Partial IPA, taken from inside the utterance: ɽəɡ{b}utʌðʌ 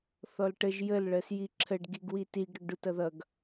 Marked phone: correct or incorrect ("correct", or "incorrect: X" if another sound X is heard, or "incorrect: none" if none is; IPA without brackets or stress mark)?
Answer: incorrect: ɖ